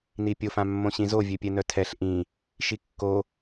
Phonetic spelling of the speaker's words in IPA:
n i pʲ o f ã mː õ ɕ ĩ z o vʲ ø pʲ ɛ n œ tʰ ɛ ɬ ʔ ĩ | ʃ i kː o

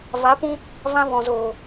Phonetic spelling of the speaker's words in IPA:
v a˨˦ p ũ˧ | v ã˧ v ɔ̃˨ z oː˨

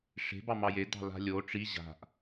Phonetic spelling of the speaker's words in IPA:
ʂ e̤ b ɑ m ɑ j e d ɑ̤ l a̤ lʲ o ʈ͡ʂ i ʑ a̤ ʔ

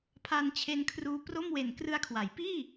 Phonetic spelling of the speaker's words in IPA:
pʰ a˧ n t͡ɕʰ e˧ n kʰ r uː˧ p r o˥˩ m w e˨˩ n k r ɯ˧ a̯ kʰ w a˩˦ j p iː˥˩

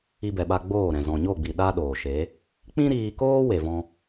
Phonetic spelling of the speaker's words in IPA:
i˧ b ɛ˨ ɓ a˧ ɡ͡b oː˦˨ ɾ ɛ̃˨ z ɔ̃˨ ɲ o˦˨ ɡ͡b i˨ ɗ a˦ ɗ oː˨ ʃ e˨˦ | k͡p ĩ˦ ɾ iː˧ k oː˦ w e˧ v ɔ̃˦

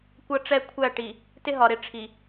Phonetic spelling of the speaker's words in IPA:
kʷ ʌ˦ ʈ͡ʂ ɛ˦˨ kʷʰ æ˦˨ ʈ i˨ | t ɪ˦ ɦ ɒ˨ ɾ ɪ˦˨ ʈ͡ʂʰ i˨

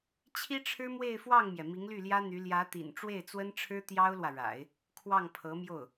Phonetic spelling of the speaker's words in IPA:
t͡ɕʰ i˥ ʈ͡ʂʰ ɻ̩˥ m w e˥˧ ɪ̯ f w ɑ˥˩ ŋ m j ɛ˩ m i˧˥ ŋ l y˥˩ l j ä˥ n̪ y˧˥ l j ä˧˥ t̪ ḭ˨˩ n ʈ͡ʂ w e˥˩ ɪ̯ t͡s w ə˥ n ʈ͡ʂʰ ɻ̩˥ t̪ j ɑ˥ ʊ̯ l w ä˨ ɻ a̰˨˩˦ ɪ̯ | kʰ w ɑ˥˩ ŋ pʰ ɤ˧˥ m j o˥˩ ʊ̯

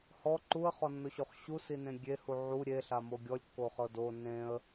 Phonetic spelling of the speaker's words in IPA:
h ɔ ǃ u ə̯ χ ɔ nː o ɕ o χ ɕ u s i n ẽ ɡʲ e h u ʕ u ɾʲ e ɬ a m o ɡʲ ɔ lʲ kː o χ ɤ d o n ẽ ə̯

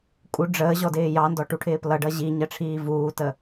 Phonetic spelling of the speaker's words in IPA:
kʼ u ɖ͡ʐ əː ʑ ɔ d ɪː j ɑ n d ɔ ʈ u ʈʰ ɪː p l ʌ ɖ ʌ ʑ i ɲ ɜ ʈ͡ʂʰ iː v uː t ə

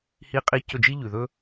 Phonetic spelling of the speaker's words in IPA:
h i˧ qʼ i˧ c ɵ˦˨ d͡ʒ i˦ ʎ ʉ˨ ð ɵ˦

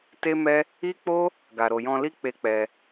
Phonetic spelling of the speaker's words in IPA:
t e˦ m ɛ˦ | i˦ k͡p o˦ | ɡ a˨ ɾ o˨ j ɔ̃˧ l i˦ k͡p e˦ k͡p ɛ˧

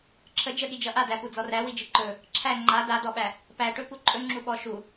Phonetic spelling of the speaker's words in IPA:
ǁʰ ə d͡ʒ ə ɠ i d͡ʒ ʌ ʔ a d æ p u d͡z ɔ r æ w i d͡ʒ ɨ ǃ ɵ | ǁʰ æ ŋ͡ǃ a d a d ɔ ɓ æ | p æ ʈ ɵ p u ǃʼ ɵ ŋ͡ǁ u ɓ ɔ ʃ u

